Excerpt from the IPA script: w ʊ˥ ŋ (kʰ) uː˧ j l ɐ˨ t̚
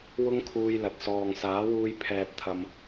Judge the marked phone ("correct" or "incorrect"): correct